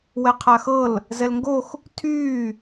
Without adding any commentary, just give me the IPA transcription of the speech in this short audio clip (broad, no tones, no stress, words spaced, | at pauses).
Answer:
wɛqʰaxɤl | zɛlŋɡox | tʰyː